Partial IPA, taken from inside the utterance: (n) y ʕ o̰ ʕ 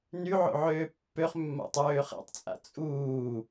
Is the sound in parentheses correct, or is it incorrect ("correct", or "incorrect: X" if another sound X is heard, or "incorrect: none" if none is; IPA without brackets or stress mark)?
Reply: correct